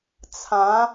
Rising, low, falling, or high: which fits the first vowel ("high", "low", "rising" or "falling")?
rising